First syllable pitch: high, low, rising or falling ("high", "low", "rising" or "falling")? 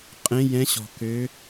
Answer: rising